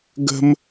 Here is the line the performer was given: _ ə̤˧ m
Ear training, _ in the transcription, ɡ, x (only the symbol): ɡ